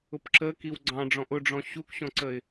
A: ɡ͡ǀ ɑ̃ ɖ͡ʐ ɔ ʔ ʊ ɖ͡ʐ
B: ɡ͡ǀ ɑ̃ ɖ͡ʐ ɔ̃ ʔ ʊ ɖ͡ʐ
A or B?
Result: B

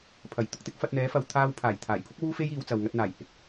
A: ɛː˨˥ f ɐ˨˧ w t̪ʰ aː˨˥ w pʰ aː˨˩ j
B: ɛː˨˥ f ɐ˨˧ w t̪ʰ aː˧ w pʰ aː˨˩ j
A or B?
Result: B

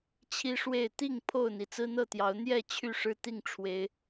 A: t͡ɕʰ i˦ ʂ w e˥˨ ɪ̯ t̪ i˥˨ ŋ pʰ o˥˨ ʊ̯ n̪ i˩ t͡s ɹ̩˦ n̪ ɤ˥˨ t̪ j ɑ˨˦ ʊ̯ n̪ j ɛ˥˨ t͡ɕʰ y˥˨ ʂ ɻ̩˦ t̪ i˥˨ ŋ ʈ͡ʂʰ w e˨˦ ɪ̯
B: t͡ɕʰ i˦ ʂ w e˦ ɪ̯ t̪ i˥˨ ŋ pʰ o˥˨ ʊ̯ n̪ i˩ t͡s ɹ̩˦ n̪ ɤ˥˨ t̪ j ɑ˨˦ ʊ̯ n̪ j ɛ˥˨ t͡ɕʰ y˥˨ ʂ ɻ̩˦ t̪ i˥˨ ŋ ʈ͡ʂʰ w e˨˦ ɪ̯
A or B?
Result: A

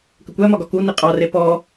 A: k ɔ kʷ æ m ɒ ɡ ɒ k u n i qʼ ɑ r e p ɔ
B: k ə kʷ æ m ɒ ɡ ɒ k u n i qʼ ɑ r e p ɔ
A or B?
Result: B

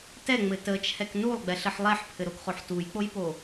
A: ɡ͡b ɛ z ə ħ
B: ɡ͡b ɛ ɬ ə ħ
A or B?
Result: B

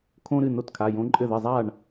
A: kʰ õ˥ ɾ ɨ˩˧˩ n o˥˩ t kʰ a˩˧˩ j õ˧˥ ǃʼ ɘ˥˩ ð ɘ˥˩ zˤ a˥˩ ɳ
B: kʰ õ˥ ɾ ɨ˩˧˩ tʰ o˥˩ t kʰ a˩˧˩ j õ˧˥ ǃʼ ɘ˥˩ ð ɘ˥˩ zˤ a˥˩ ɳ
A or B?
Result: A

